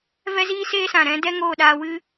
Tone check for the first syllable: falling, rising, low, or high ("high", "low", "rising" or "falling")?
high